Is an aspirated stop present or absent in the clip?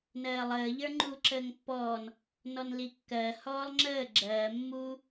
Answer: absent